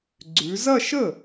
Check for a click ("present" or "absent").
present